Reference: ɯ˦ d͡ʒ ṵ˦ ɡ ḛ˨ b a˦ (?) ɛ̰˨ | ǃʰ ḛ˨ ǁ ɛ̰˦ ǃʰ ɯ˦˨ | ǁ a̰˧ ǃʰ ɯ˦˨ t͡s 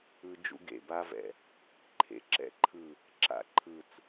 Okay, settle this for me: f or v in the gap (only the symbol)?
v